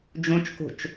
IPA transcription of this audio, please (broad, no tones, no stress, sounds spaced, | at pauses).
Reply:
d͡ʒ ũ t͡ʃ k ṳ t͡ʃ